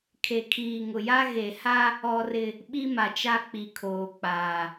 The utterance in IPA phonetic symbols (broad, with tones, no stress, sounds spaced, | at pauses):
kʰ e˨ kʰ iː˨ ŋ ʊ˨ j a˦ ɣ e˨ h a˦ | ɔ˦ r ɪ˦ | ɓ i˦ m a˨ t͡ʃ a˦ k͡p i˨ kʰ oː˨ k͡p aː˨